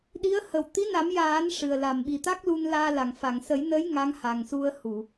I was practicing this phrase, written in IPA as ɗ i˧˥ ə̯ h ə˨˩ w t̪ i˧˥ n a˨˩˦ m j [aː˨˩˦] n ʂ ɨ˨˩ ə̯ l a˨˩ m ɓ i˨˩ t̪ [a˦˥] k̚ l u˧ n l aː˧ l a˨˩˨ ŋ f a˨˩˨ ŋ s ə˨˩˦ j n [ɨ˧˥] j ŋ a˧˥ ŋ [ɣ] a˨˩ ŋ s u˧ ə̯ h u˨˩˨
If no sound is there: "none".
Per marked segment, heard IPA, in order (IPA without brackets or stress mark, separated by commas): aː˨˩˦, a˦˥, ə˧˥, h